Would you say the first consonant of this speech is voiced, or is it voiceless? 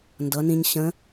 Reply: voiced